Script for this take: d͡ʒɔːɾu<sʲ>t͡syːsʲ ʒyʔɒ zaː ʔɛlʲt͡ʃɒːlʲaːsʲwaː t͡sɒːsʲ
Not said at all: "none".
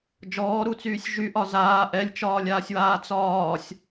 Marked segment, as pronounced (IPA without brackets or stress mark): none